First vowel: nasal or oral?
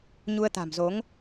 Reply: oral